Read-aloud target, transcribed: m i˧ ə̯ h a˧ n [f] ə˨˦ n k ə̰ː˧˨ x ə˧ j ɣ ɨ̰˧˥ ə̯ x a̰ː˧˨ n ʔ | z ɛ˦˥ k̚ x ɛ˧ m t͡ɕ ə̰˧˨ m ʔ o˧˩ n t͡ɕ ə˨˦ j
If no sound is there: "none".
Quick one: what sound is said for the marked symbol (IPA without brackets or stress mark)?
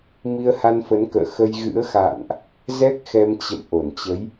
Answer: f